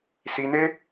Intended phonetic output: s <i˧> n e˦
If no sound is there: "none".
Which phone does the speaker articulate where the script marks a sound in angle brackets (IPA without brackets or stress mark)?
i˧